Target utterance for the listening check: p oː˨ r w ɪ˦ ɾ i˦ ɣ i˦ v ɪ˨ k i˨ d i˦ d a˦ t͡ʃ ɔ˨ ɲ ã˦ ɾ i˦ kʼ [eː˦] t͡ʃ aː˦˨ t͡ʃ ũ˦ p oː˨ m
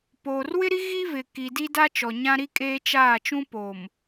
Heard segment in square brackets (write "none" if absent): eː˦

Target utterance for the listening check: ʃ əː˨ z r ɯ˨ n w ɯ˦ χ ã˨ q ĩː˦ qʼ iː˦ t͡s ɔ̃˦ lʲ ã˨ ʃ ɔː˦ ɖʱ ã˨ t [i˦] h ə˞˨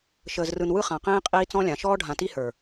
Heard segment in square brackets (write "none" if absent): i˦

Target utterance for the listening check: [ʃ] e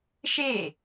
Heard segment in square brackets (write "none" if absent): ʃ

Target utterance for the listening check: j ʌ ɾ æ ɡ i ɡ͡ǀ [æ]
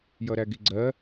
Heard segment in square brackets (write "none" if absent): ɜ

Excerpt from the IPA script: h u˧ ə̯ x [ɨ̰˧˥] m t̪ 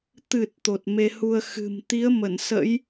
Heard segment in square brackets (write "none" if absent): ɨ̤˨˩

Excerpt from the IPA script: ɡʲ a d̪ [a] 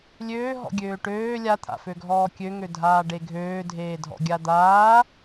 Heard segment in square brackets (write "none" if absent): aː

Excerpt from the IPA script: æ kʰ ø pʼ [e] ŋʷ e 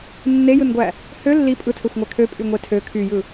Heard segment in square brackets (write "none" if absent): y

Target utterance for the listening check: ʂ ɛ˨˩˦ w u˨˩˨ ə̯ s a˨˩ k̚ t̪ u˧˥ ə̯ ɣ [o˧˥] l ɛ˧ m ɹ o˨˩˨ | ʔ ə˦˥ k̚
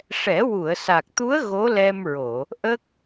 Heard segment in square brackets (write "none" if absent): o˧˥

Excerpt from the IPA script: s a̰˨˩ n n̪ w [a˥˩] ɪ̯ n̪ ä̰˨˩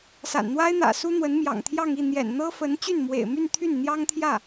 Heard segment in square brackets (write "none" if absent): a˥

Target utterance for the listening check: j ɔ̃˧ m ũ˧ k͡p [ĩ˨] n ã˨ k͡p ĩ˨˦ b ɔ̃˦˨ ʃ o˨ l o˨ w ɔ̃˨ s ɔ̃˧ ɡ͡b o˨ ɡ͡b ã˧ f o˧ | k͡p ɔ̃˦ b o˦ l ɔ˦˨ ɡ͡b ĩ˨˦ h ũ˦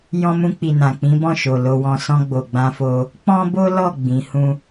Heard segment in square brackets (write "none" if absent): i˨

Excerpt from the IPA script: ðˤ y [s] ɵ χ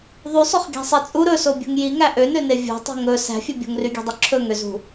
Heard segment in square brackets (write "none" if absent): sˤ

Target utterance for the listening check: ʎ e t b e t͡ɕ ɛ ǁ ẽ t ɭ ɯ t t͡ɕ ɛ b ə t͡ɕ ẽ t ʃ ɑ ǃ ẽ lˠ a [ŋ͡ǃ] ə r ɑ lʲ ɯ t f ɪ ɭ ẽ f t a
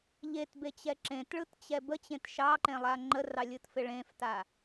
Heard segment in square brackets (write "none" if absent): ŋ͡ǃ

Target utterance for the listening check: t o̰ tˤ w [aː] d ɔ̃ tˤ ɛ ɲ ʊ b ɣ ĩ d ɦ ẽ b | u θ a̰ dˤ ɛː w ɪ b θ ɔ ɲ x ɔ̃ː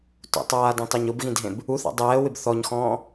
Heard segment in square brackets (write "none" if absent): aː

